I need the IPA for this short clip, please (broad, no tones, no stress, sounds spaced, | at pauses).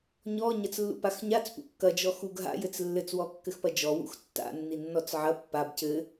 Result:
ɲ ɔ ɲ ɐ t͡s lː ṵ p a x ɲ a t͡s p ṵ kː ɐ d͡ʒ ɔ x u ɡ ɦ a̰ j ɘ t͡s lː ɘ t͡s w ɔ kː ɘ x p ɐ d͡ʒ ɔ w ṵ x tː a̰ nː i nː ɔ t͡s ʕ ɐ pː a b c ɘ